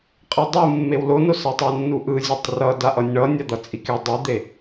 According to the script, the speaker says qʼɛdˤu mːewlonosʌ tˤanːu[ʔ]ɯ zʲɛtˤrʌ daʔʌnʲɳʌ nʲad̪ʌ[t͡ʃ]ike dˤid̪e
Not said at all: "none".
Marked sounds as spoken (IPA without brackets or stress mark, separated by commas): ʔ, t͡sʼ